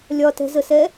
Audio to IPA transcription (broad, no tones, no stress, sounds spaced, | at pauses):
lʲ ɒ t ɛ̤ z ə s ɛ